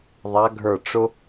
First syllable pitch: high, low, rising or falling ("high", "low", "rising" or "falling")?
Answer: rising